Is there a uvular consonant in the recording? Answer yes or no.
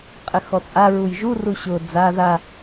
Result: yes